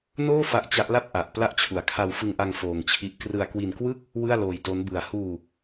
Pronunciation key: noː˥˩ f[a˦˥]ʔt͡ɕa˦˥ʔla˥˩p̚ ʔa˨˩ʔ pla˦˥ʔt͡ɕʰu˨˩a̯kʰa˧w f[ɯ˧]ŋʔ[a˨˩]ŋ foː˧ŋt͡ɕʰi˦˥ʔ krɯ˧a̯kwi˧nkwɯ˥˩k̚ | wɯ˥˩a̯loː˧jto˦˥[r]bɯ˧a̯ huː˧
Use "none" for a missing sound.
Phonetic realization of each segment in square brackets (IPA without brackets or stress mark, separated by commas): a˦˥, ɯ˧, a˧, n